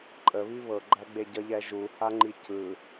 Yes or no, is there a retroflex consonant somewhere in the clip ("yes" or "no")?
no